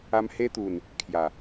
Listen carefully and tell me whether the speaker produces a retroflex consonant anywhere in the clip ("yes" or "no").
no